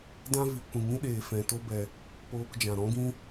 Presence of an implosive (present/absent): present